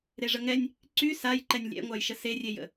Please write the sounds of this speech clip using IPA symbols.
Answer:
ɾ e ʐ ə ŋ ɛ nʲ | ǀ y s a j ǃ ɛ nʲ lʲ ɛ̰ ŋʷ a j ʃ ə s e rʲ e j ə̰

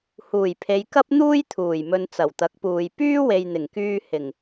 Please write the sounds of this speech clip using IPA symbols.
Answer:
h uː˨˩ j pʰ e˨˧ j k ɐ˥ p̚ n̪ uː˥ j t̪ʰ uː˨˩ j m ɵ˨ n t͡s ɐ˨˩ w t̪ ɐ˨˥ k̚ p uː˨ j p yː˥ w e˨ j n̪ ɪ˨˩ ŋ k yː˧ h ɪ˨˩ ŋ

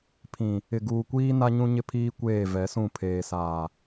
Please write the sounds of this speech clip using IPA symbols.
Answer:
pʰ ĩ˨ | ɪ˨ ɡ uː˨ kʷ iː˦ n a˦ ɲ ũ˦ ɲ ɪ˦ pʰ iː˦ kʷ eː˦˨ v ɛ˨˦ s ũ˦˨ pʰ eː˨ s aː˨

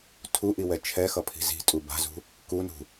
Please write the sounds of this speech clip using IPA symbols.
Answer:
tʰ u ʔ i w ɛ t͡ʃʰ ɛ x ʌ pʰ i̤ z i̤ tʼ u b a̤ z ṳ | k u n ṳ

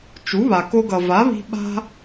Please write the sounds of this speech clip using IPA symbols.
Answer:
t͡ʃ u˩˥ β a˩ k o˧ ɡ ʌ˩ v a˩˥ β i̤˧ ɓ a̤˧

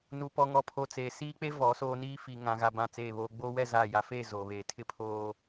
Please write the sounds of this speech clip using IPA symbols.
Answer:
n u˨ p ɔ˨ ŋ ɔ˨ pʰ o˨ t͡s eː˨ s iː˦ k͡p e˦ v ɔ˨˦ s oː˦ n iː˦ f i˨ ŋ ã˨ ɣ a˨ b ã˦˨ t͡s eː˦˨ β oː˦ ɡ͡b oː˦ w ɛ˦˨ z aː˦˨ j a˦ f eː˦˨ z oː˨ β eː˨ tʰ ɪ˦ pʰ oː˨

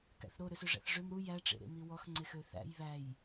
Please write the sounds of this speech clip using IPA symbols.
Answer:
k æ̰ θ ɾ o ɾ ø s ø ʐ æ̰ θ ʐ ø m ɾ u j æ ʈ͡ʂ ḛ ɾ ḛ m i w ɔ x ŋ͡ǀ e x ø θ æ̰ j β æ j

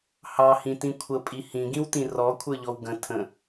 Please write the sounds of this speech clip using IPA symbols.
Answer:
h ɑ h ĩ t ĩ kʷʰ ə pʼ i h ĩ ɡ ĩ w t ĩ r ɔ kʷʰ ə˞ ʎ ɔ w ɡ ə̃ tʰ ə̃

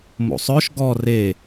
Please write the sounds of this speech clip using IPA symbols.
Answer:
m o̰ sˤ œ ʃ ɡ ɔ r e

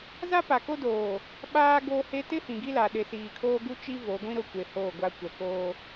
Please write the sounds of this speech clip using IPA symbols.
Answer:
z a˦ p a˨ k o˦ d oː˨ | ɓ aː˦ ɡ o˦ h e˦ t ɪ˦ h ĩ˨ ɡ i˦ l a˨ ɗ ɪ˨ s iː˨ kʰ oː˦ ɡ u˦ t͡ʃ i˦ v o˨˦ ɡʷ ĩ˦ ɾ ʊ˦˨ kʷ e˨ h oː˦˨ ɡʷ a˦ kʷ ɛ˨ k oː˦

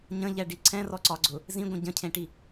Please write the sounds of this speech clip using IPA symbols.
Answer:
ɲ ə̃ ʎ ɛ ɖ i ǀʰ ɛ̃ r ɔ ǀ ɒ ɡ͡ǀ ʊ | z ĩ ɡʷ ə̃ ɟ ə̃ cʰ ẽ ʈ i

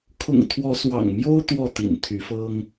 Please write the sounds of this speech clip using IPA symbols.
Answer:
kʰ ʊ̰˨˩ ŋ t̪ʰ w ɔ˨˦ s w ɑ̰˨˩ ŋ m j o˦ ʊ̯ t̪ w ɔ˥˨ t̪ ḭ˨˩ n t̪ʰ y˨˦ f ɤ˦ ŋ

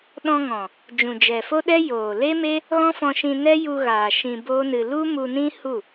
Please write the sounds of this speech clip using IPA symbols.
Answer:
ɗ ɔ̃˧ ŋ ɔ̃˨ | d͡ʒ ũ˨ d͡ʒ ɛ˨ f o˦ ɗ ɛ˦ j oː˨ l e˦ m e˦ | ɣ ɔ̃˦ f ɔ̃˧ ʃ ĩ˧ n ɛ˦ j u˧ ɣ aː˨ ʃ ĩ˧ b o˦ n ɨ˧ l u˦ m u˧ n ĩ˦ h u˦˨

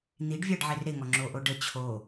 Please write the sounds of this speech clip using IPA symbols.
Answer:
n̪ i ɖ vʲ a ɖ ʕ e r ɾ e ŋ ɔ ŋ͡ǁ o ʔ o ɖ ə t͡ɕʰ o

